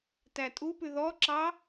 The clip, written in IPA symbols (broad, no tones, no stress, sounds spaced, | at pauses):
t æ tʼ u p ʉ ð ɔ ǁ ɑ